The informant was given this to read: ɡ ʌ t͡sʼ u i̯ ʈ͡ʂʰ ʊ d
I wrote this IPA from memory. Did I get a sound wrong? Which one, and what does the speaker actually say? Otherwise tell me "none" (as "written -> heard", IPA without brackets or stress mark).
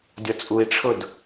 ɡ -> dʲ